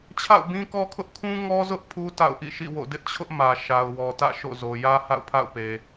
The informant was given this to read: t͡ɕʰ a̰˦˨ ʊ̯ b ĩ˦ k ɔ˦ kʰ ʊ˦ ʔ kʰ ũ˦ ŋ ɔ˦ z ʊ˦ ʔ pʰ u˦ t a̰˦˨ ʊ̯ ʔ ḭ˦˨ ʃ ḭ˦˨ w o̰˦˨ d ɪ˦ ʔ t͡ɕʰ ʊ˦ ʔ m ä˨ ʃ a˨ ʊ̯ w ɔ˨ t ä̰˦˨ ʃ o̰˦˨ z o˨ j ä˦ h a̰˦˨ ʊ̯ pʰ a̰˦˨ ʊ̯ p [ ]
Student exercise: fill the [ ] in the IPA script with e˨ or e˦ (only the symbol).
e˨